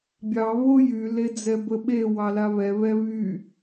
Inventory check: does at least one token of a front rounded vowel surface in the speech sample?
yes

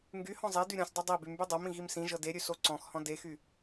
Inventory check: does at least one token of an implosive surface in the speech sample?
no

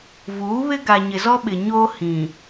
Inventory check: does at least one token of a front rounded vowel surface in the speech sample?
no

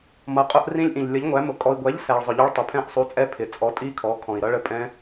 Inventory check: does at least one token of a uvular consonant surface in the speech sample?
yes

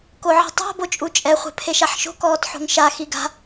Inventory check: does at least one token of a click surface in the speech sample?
no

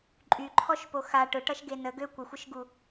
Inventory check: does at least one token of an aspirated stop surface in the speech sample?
yes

